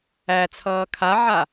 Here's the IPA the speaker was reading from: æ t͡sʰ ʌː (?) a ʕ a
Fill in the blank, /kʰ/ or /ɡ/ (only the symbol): kʰ